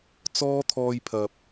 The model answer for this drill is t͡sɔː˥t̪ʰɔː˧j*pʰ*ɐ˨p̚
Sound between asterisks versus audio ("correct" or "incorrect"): correct